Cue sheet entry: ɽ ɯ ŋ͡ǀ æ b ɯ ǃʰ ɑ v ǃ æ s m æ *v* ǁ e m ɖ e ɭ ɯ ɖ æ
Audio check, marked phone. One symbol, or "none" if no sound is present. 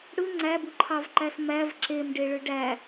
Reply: v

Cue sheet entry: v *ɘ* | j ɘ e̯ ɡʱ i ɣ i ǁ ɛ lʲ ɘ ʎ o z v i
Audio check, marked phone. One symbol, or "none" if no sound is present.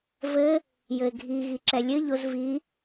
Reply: ɘ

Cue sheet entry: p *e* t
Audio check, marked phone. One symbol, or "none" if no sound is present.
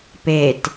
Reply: e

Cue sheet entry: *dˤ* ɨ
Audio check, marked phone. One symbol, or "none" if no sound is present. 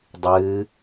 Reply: dˤ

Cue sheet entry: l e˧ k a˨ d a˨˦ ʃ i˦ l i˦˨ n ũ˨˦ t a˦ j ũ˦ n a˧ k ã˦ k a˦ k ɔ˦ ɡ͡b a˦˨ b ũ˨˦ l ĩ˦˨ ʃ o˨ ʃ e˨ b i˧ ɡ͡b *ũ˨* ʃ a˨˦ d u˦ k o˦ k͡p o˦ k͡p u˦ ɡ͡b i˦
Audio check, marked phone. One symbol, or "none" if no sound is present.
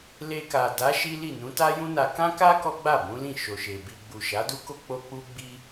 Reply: u˨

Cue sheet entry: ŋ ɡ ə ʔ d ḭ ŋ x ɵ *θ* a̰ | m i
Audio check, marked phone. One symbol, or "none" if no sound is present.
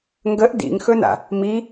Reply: n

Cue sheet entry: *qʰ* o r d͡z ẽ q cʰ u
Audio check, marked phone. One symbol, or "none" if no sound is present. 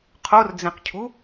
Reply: qʰ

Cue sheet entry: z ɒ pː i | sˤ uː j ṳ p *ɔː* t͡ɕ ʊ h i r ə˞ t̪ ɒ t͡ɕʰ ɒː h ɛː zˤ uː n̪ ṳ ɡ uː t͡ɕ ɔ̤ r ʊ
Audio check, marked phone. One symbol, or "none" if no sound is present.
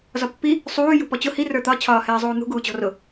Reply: ɔ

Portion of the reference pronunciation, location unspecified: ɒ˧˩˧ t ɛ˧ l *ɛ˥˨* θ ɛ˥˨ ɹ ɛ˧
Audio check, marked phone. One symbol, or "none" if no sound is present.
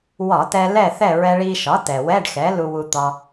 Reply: ɛ˥˨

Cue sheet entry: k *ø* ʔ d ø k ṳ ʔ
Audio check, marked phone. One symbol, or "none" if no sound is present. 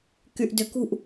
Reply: y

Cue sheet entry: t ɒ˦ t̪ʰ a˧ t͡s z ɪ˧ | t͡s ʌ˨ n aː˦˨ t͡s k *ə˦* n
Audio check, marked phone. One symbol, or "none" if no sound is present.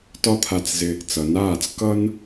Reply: ʌ˦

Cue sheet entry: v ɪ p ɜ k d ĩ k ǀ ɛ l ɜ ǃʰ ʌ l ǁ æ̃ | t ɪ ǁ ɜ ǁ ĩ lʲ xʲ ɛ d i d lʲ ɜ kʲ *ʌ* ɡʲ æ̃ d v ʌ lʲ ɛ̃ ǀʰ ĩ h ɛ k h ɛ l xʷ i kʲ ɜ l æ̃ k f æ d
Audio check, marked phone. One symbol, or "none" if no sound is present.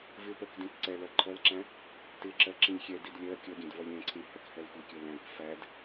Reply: ʌ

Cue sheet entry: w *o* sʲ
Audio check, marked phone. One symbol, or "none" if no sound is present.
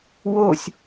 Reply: o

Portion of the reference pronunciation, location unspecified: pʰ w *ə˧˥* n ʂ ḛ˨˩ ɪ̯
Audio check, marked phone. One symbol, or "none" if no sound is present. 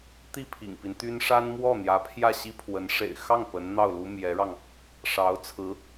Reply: ə˧˥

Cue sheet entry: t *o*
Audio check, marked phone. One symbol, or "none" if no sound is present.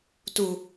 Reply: u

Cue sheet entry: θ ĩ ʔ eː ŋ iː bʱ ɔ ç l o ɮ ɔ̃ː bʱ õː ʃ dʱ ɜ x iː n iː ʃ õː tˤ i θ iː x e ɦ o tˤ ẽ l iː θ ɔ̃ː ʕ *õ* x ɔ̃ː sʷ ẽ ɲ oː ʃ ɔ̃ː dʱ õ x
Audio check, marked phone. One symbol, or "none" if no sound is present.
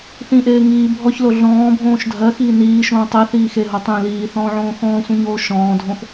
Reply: õː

